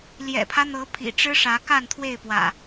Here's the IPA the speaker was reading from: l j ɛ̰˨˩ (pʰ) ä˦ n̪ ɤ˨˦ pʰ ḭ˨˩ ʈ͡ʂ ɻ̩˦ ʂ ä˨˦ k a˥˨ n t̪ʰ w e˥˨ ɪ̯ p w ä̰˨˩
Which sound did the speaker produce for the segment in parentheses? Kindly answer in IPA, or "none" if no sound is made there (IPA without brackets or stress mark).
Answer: pʰ